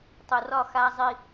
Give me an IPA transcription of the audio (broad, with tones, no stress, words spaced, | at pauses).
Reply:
tˤo˨rɒ˦˨ xa˦zˤi˦